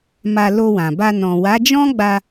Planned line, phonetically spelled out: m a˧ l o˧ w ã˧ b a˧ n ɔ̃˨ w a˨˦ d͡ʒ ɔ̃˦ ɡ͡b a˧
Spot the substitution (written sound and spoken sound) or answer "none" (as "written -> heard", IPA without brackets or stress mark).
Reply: ã˧ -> ã˨